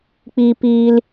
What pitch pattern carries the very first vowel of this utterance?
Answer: high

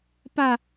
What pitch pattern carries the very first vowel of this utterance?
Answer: high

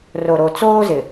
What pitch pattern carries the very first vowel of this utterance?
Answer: low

